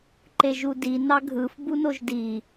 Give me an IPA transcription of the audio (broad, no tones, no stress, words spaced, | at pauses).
ǃeʒudi nɑɡʱɯf bunoʒdi